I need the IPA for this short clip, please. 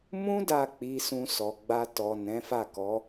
m ũ˦ d a˦˨ k͡p i˨˦ s ũ˧ s ɔ˨ ɡ͡b a˧ t ɔ˨ n ɛ̃˨˦ f a˦˨ k ɔ˨˦

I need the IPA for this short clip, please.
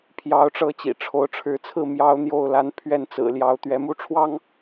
pʰ j ɑ˨˦ ʊ̯ ʈ͡ʂ ɤ˨˦ t͡ɕ ḭ˨˩ ʈ͡ʂʰ o˨˦ ʊ̯ ʈ͡ʂʰ ɻ̩˨˦ t͡sʰ ɹ̩˥˨ m j ɑ˦ ʊ̯ n̪ j o˥˨ ʊ̯ l a˦ n pʰ ɥ ɛ˥˨ n t͡s ɹ̩˨˩ l j ɑ˨˦ ʊ̯ t̪ ɥ ɛ˨˦ m u˥˨ ʈ͡ʂʰ w ɑ˦ ŋ

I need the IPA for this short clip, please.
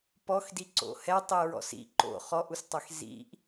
p ɔ x d i ǀ o̰ h ɛ tˤ i ɹ ɔ̰ s ḭ ǃ o̰ χ ɔ ʔ u s tˤ ɛ x z ḭ ʔ

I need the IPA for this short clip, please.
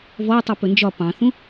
v ɔ tˤ u p ɵ n d͡ʒ ɒ p ɑ̃ θ ũ

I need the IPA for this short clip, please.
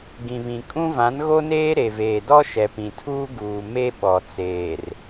ɡ ĩ˨ β ĩ˨ kʼ ũ˦ v ã˨˦ n ɣ o˦ n eː˦ ɾ e˨ v eː˨ d ɔ˦ ʃ ɛ˨ p ĩ˨ tʰ uː˦ ɡ uː˨ m e˦ ɓ ɔ˨ t͡s eː˨ r

